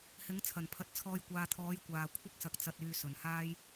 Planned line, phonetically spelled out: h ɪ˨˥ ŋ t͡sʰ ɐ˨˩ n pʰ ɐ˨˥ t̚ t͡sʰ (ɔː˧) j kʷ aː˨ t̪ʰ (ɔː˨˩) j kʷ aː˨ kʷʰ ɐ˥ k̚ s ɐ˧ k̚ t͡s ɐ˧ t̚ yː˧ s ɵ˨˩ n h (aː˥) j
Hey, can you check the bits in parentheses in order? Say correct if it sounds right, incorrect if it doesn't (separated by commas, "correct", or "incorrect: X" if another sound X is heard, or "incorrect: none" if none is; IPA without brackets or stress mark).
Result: correct, incorrect: ɔː˨˥, correct